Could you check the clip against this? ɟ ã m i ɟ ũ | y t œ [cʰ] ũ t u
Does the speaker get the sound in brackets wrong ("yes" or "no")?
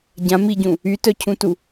no